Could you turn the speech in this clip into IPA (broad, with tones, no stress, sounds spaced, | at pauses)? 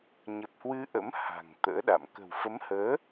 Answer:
ɲ ə˨˩ p̚ h w ɨ˧ ʔ ə̰˧˥ m h a̤˨˩ ŋ t̪ ə̰ː˧˥ ɗ a̰˧˨ m k ə̤˨˩ w f ə˨˦ m h əː˨˦